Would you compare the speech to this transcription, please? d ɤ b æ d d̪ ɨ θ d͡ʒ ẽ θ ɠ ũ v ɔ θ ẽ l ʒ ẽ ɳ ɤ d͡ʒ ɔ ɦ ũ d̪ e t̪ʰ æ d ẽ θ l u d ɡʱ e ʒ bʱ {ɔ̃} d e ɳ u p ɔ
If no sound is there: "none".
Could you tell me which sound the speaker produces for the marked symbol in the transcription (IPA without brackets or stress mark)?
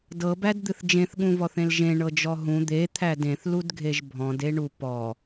ɔ̃